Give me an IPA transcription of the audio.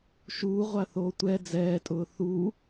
ʃ uː ʁʷ a θ oː tʷ ɛ d͡z ɛː tʼ ʊː θ u

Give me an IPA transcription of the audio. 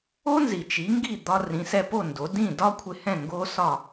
o˥ n z i˩ t͡ʃ i˩˥ ŋ ɡ i˥˩ d̪ ɒ˧ r ĩ˩˥ s ɛ˧ p o˥˩ n d o˩˥ d ĩ˥˩ d ɒ˥ kʷʰ ɪ˧ h ɛ̃˥˩ ŋ ɡ o˥ s ɒ˥˩

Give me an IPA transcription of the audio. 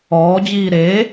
ɔː d͡ʑ iː ɾ e

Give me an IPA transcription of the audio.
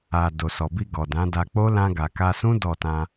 a˨ d o˨ s ɔ˨ b i˧ ɡ ɔ˨ d ã˨˦ d a˧ k͡p o˦ l ã˧ ɡ a˨ k a˧ s ũ˦ d ɔ˦˨ t ã˧

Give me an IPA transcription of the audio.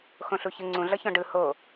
x õ ɬ u ç ɯ ŋ͡ǀ ũ ɮ ʌ ç ɔ̃ ɖ ɯ h o

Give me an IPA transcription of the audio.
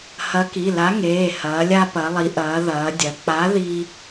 h ɐ˨˥ k i˩˧˩ l a˨˥ ŋ eː˩˧˩ h ɐː˩˧ lʲ a˧ p ɐ˩˧ lˠ i˩˧ ʔ ɐː˩˧ ð ɐː˩˧ dʲ ɐ˩˧ k͡p a˨˥ ð i˧

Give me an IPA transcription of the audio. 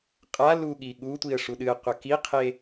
qʼ a l u ɠ i ɠ u tʷ i ə̯ ʂ u ɗ ɨ ə̯ qʷ ɐ k i qʰ e

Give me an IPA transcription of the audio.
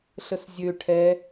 ɬ ə s zʲ ø ʈʰ ɛ

